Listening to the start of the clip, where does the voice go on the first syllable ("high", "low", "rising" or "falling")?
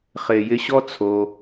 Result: low